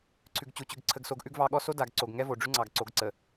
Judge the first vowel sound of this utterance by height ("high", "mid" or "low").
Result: high